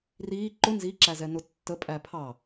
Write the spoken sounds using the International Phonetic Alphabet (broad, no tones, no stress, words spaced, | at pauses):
riː ǃʊ nziǁæzɛ nʊtːə pʼæpʰɑ